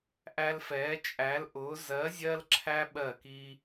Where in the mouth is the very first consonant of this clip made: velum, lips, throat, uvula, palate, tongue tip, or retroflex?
throat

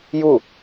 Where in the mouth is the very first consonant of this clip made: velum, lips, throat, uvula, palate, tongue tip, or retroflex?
palate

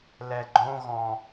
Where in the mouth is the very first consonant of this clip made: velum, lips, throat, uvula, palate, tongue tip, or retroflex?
tongue tip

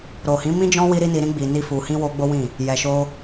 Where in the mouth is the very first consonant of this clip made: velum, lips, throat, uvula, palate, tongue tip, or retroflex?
tongue tip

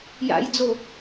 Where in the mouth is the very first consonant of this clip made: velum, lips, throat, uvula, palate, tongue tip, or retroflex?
palate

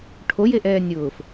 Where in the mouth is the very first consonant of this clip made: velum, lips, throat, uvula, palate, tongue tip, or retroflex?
retroflex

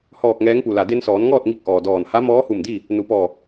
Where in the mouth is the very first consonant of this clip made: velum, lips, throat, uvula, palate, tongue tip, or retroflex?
throat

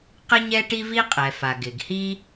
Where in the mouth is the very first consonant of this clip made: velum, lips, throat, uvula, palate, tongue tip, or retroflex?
uvula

